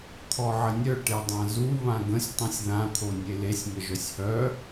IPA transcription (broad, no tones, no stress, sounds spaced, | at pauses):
t̪ʰ ɔ ʕ ə nʲ œ ʈ e dˤ ã z u β ã ɡ ə̃ sʲ tˤ ũ sʲ ð ã t̪ʰ o nʲ e l e sʲ m ə ʒ œ sʲ h œ